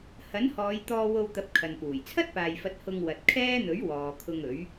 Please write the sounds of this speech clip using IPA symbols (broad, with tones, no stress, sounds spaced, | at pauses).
h ɐ˨˥ n h ɔː˨˧ j t̪ ɔː˧ w o˧ w t̪ ɐ˨˥ p̚ kʰ ɐ˨ n p uː˨˩ j t͡sʰ ɐ˥ t̚ p aː˨ j f ɐ˨˥ t̚ h ʊ˧ ŋ w ɐ˨ t̚ kʰ ɛː˥ n̪ ɵ˨˥ ɥ w ɔː˨ kʰ ʊ˧ ŋ ɵ˨˥ ɥ